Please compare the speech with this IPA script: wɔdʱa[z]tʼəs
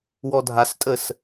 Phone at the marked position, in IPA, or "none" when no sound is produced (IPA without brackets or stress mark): s